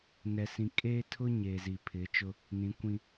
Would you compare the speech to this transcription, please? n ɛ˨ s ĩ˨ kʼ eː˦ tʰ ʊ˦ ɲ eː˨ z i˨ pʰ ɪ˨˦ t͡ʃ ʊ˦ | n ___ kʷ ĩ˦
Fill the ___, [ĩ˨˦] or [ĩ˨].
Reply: ĩ˨˦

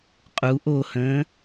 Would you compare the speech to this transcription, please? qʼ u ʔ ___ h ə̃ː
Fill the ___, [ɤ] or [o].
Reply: o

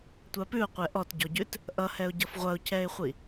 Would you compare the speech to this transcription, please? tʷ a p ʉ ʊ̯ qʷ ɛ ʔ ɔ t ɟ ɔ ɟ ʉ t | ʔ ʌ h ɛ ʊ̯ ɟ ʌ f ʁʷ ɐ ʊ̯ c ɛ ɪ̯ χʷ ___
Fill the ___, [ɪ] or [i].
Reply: i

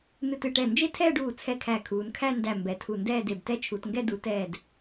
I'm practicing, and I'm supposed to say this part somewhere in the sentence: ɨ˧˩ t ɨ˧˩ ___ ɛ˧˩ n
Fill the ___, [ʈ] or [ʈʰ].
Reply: ʈ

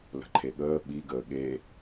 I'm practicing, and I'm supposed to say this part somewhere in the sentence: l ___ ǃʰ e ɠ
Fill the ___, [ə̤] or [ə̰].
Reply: ə̤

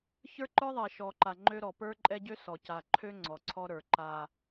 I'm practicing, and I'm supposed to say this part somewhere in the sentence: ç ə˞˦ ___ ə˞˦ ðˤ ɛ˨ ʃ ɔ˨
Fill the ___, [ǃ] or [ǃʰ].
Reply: ǃ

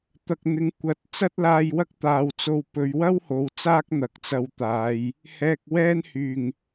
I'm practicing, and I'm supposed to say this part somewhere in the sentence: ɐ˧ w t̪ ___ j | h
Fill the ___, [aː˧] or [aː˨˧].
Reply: aː˨˧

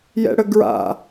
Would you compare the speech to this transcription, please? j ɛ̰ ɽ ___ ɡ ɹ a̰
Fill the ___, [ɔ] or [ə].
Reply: ə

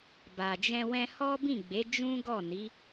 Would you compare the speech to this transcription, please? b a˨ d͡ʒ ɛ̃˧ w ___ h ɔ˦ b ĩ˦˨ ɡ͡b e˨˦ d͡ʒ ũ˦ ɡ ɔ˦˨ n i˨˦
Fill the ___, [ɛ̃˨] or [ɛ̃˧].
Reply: ɛ̃˧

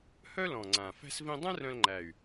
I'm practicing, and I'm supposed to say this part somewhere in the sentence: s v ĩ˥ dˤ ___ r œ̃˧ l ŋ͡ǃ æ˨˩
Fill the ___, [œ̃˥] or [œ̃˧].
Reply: œ̃˥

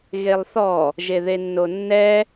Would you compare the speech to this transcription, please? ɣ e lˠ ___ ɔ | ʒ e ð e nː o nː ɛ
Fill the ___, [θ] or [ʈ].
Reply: θ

